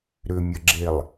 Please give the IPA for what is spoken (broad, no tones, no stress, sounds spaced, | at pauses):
ɾ ʏ mʲ ə ɡ͡ǁ e lˠ